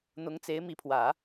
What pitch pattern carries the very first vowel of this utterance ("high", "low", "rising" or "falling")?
rising